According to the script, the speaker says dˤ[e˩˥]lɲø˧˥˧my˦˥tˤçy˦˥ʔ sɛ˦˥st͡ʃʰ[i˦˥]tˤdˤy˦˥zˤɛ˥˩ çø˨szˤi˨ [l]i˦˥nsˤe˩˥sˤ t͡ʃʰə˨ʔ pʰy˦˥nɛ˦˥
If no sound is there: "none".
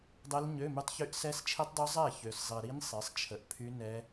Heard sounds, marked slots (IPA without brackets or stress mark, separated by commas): e˦˥, i˦˥, ɾ